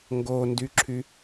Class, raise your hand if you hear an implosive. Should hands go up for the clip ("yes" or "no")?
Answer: no